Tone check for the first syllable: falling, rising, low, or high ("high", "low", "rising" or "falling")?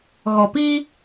low